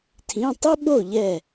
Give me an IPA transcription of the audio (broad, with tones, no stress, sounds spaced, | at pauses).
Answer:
tʰ ĩ˧˥˧ tˤ i˥ ɓ o˥˨ ʎ ɛ˥˨